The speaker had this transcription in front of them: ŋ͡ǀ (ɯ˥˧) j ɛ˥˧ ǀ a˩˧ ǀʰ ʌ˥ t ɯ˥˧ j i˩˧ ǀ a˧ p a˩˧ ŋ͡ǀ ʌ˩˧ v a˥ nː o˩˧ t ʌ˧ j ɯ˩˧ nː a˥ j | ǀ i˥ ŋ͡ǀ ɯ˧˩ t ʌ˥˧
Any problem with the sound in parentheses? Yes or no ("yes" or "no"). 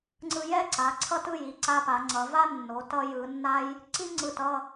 yes